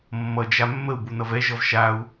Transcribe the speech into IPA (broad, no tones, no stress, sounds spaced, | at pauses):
mː ʌ d͡ʒ a mː ə u̯ b u n ʌ v ɛ ʒ ʌ v ʃ a u̯